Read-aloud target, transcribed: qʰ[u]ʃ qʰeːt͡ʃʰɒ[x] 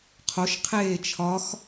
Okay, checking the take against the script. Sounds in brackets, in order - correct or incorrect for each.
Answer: incorrect: o, correct

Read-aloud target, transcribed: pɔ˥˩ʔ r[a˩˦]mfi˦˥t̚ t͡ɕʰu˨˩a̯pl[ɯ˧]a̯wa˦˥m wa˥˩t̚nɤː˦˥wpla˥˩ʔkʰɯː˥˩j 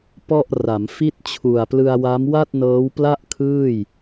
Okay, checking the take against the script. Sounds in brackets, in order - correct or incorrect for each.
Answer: correct, correct

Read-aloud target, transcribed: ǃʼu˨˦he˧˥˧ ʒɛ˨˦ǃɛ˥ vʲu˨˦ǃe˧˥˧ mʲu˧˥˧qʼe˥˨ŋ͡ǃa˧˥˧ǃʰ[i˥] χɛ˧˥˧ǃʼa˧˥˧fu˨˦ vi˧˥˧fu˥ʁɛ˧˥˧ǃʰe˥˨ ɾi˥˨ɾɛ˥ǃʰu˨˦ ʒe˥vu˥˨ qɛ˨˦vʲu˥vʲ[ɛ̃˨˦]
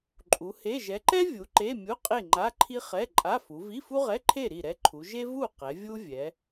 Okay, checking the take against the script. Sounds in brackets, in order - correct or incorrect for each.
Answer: correct, incorrect: ɛ˨˦

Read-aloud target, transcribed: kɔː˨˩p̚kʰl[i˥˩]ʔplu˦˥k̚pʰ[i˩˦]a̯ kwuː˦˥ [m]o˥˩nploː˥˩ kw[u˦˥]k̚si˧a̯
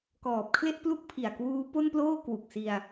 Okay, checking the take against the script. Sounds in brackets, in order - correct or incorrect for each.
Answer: incorrect: e˥˩, incorrect: i˨˩, incorrect: p, incorrect: u˨˩

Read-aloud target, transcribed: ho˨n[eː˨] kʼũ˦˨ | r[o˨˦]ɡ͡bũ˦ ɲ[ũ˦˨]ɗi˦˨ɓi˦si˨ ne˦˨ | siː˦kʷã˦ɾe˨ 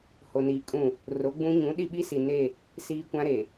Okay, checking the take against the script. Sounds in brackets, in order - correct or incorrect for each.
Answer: incorrect: iː˨, correct, incorrect: ũ˨˦

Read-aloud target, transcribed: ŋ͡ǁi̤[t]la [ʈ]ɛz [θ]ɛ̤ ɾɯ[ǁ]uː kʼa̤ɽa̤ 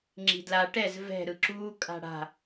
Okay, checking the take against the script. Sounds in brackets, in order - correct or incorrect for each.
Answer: incorrect: d, correct, incorrect: v, correct

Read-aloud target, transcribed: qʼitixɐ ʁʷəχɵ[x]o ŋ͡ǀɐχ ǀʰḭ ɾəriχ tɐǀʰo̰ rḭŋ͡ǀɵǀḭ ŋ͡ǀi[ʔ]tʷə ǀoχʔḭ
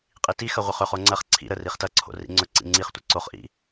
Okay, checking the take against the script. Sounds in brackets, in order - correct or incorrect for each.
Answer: incorrect: χ, incorrect: χ

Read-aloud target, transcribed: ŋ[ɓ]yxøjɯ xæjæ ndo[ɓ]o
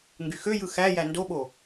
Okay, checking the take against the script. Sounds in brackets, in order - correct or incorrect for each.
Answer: incorrect: ɡ, correct

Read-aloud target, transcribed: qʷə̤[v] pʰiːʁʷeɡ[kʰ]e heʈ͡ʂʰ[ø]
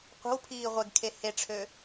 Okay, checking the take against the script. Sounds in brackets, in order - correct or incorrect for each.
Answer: incorrect: w, correct, correct

